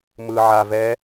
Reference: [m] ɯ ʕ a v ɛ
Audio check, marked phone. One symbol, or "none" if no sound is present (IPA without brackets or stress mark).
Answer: m